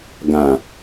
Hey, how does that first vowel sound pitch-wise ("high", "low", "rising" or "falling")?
low